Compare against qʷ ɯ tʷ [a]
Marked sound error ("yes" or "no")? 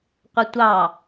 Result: yes